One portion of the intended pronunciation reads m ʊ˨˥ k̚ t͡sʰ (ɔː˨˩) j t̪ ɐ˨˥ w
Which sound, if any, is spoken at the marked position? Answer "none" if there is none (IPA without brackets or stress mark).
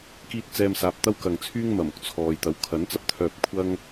ɔː˨